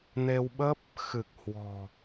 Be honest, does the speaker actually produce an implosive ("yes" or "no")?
yes